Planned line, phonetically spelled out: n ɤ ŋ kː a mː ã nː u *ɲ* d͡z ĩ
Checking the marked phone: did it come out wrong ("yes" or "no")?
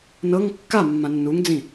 yes